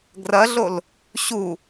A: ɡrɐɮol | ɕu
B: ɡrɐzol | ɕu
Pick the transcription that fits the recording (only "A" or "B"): A